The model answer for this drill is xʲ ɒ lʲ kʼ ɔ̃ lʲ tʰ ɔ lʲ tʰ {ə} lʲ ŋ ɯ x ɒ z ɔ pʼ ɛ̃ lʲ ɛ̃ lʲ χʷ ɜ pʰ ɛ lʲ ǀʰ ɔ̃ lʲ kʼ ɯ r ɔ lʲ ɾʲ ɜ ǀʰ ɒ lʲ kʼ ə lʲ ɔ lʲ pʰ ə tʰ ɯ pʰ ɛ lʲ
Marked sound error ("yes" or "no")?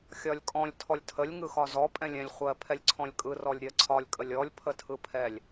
no